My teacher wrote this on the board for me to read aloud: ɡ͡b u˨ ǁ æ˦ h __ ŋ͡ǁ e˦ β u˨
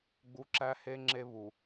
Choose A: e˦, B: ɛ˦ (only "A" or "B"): A